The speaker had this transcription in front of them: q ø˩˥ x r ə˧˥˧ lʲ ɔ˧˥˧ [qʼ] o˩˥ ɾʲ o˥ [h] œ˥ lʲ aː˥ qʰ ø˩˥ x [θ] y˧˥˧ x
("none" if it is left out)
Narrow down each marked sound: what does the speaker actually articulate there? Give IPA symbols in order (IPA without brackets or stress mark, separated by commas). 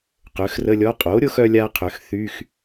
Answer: qʼ, x, θ